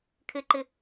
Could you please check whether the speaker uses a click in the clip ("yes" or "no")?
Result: yes